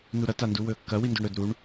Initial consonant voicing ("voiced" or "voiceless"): voiced